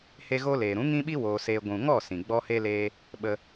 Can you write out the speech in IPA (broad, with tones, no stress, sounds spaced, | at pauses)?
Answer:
h e˧ ɣ o˧ l eː˨ ɾ ũ˨˦ ŋ ĩ˦ ɓ i˦ w oː˧ s eː˧ ɡʷ ũ˨ ŋ ɔ˦˨ s ĩ˨ ɡ͡b ɔ˦ h e˦ l eː˦ | ɓ ə˧